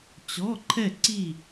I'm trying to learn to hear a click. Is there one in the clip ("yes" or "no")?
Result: yes